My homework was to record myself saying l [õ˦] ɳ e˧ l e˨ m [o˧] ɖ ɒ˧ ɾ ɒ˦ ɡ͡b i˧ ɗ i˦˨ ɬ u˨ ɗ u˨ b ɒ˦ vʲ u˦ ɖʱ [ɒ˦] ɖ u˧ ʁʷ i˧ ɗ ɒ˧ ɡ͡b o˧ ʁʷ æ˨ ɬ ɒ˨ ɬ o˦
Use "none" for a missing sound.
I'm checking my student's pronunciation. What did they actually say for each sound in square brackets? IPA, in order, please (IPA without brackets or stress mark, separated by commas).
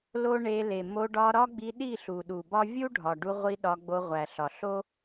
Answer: o˦, o˧, ɒ˨